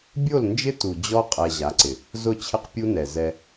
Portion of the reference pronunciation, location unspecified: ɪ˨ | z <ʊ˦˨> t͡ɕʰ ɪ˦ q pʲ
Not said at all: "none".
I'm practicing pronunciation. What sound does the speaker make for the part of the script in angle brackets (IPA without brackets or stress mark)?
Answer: ʊ˦˨